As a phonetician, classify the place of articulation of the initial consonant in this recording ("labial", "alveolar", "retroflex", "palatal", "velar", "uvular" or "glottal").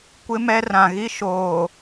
velar